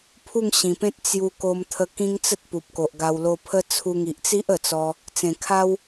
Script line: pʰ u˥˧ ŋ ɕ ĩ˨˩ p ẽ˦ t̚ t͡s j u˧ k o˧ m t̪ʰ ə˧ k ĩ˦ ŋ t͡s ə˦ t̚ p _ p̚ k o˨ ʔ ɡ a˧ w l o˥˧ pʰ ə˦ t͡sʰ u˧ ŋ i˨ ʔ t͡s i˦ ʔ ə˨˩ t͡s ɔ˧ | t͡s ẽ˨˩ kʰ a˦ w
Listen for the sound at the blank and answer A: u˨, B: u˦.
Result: A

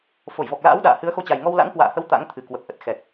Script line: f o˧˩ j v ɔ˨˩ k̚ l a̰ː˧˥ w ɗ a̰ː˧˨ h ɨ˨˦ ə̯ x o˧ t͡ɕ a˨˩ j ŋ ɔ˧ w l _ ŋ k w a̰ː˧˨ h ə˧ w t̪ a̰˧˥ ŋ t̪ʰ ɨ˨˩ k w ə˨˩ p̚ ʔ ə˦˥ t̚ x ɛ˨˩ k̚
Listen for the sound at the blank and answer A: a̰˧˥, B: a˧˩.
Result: A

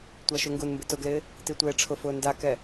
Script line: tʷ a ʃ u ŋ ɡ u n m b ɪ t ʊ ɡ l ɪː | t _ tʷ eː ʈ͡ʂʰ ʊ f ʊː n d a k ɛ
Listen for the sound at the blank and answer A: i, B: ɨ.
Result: A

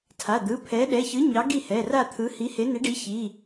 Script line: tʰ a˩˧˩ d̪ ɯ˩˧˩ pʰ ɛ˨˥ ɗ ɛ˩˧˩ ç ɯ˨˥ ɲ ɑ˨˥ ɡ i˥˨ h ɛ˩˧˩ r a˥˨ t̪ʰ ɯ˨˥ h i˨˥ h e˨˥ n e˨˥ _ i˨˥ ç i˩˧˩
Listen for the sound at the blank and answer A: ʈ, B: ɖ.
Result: B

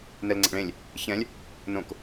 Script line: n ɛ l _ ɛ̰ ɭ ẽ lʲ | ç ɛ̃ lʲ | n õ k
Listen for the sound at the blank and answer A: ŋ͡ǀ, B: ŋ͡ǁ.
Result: A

